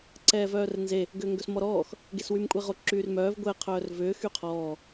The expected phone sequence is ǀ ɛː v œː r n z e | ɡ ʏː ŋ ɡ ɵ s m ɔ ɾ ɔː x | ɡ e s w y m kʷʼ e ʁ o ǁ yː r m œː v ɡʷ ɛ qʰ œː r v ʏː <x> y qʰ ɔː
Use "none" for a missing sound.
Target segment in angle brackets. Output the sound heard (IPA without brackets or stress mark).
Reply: x